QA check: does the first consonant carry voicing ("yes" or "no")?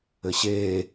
no